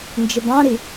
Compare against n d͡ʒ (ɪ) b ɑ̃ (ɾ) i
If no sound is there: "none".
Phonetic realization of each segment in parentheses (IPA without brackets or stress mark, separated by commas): ɪ, ɾ